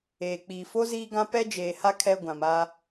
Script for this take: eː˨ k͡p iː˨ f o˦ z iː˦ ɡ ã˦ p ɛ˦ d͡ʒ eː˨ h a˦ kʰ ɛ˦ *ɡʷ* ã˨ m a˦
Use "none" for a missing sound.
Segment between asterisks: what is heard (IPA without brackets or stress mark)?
ɡʷ